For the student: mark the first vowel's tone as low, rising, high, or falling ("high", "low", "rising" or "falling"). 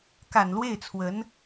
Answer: low